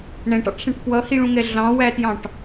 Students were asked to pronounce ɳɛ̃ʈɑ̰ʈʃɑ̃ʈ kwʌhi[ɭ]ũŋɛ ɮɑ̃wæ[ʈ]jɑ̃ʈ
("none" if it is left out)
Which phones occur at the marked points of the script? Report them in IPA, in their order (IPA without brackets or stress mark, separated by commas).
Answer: ɭ, t